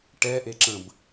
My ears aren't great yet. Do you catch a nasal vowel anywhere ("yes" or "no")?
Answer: yes